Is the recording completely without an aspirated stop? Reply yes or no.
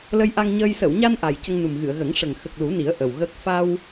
yes